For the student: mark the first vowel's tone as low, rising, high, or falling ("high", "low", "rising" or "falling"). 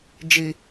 low